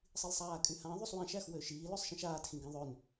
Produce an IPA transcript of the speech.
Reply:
sˤilsˤaːkʼyhã ðˤysˤwĩʃæx wøʃiː løsˤʃĩʃaːtxĩ ɡĩðˤøn

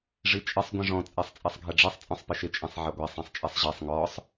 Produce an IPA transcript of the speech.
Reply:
ʐit͡ʃʼɪsˤ ɡʷĩʐɔ̃ t͡sʼɛsˤt͡sʼɛsˤɡʱɛɖ͡ʐisˤ t͡sʼɔ̃sˤpɪʃɪ t͡ʃʼĩsˤʕɛɡʷɛ sˤĩsˤt͡ʃʼɛsˤʑesˤ ŋɔsˤ

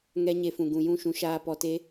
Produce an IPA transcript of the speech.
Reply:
ŋɛ˧ɲe˨fũ˨ ɡũ˨jũ˦˨ʃũ˧ ʃaː˧pɔ˧te˦

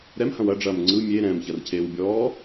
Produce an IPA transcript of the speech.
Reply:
ɾɛmhɐ̃w ɐɖ͡ʐɐːm ŋ͡ǀɯ mʲe ɾɛ̃mçɐrcʰeːwbʲɔː

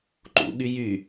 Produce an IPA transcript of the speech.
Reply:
ǃṵɠy jy

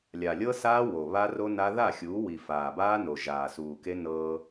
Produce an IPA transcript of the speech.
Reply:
lʲa˨lʲɤ˦saː˦ wo˨βa˦ro˦na˦ ða˦˨ xʲuː˨˦wi˨ faː˨baː˦no˨ ʒaː˨suː˨ke˦nɤ˦

